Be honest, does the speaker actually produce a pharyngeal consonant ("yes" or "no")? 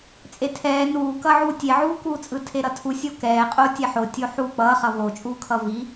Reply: yes